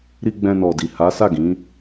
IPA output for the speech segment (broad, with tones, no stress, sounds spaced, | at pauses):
ɾ i˧ ɡ͡b ɛ̃˧ n ɔ˨ d i˨ h a˨˦ s a˦˨ ɡ ĩ˨˦